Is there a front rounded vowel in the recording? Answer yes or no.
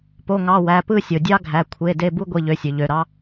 yes